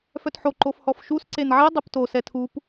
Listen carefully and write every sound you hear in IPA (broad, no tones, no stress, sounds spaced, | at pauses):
f œ t ħ o ǃ o f h ɔ f ʃ u s ǀ e n ʕ i dˤ i p t o s ɛ tʰ u p